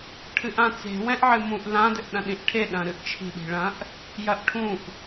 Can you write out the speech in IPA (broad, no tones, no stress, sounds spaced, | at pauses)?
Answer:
ʈʰ ɨ ʔ ã t͡s e̤ w ɛ̃ ʔ ʕ ɨ m ũ ʔ l ã d ɘ ʔ ɗ ɐ̃ ɗ ĩ ʔ ʈʰ e ɗ ɐ̃ ɾ ɨ ʔ t͡ʃʰ i̤ ɗ i̤ ɭ ɐ̃ ʔ | j ɐ ʔ ʈʰ ũ ʔ